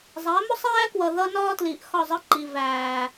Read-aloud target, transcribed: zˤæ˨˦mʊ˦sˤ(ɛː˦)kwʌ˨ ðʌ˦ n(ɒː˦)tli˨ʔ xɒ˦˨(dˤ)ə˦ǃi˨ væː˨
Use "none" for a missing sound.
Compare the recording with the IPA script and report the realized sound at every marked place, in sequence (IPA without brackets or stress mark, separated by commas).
æː˦, ɒː˦, zˤ